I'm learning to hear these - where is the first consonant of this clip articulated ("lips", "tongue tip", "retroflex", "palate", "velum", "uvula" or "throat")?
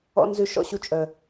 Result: tongue tip